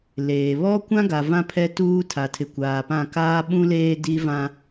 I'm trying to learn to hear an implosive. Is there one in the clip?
yes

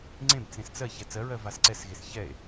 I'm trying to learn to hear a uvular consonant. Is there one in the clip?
no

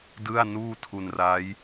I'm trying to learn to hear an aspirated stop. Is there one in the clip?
yes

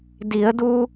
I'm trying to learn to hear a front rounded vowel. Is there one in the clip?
no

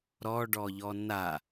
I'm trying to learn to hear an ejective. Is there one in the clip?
no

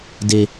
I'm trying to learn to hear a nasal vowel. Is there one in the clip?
no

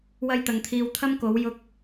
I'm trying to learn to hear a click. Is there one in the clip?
no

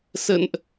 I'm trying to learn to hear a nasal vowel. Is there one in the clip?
no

